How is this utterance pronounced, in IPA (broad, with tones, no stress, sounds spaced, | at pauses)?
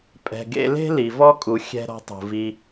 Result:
pʼ ɛ̤˨ ɡ ḛ˧ l e̤˦ l i˨ v ɔ˦ kʼ u˨ xʲ ɛ̤˨ ɾ ɔ̤˧ tˤ ṳ˨ v i˧